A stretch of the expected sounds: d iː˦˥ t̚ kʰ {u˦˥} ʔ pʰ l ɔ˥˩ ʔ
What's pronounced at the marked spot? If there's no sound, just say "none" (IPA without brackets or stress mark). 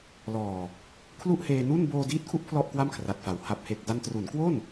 u˦˥